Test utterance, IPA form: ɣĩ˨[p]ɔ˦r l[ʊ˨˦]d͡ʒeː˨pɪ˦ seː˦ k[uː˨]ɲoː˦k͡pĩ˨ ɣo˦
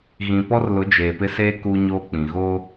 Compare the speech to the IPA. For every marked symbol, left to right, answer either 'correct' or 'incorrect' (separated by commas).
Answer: correct, correct, incorrect